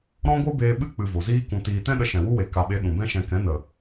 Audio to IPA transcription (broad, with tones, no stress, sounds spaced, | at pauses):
ɾ ɔ̃˦ ɡʷ ɨ˦ b eː˧ ɓ ɨ˦˨ k͡p ɨ˨ v o˨ z iː˦ k ũ˧ t iː˨ t ɛ̃˦ ɗ ə˧ ʃ ɛ̃˨ w u˦ w e˨ k a˨ ɓ e˨˦ ɗ ũ˨ b ɛ̃˦ ʃ ɛ̃˧ k ɛ̃˨˦ n ə˨